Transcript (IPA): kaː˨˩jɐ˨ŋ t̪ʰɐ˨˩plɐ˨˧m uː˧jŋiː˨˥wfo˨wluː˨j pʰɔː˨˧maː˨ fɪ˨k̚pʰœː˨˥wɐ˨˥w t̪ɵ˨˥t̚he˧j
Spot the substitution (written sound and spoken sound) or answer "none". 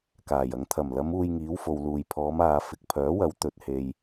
p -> m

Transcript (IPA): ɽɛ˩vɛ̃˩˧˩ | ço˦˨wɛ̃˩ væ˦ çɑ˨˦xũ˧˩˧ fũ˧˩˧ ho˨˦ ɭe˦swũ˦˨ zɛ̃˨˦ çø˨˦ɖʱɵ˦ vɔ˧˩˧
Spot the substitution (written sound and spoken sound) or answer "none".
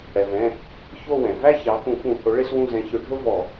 none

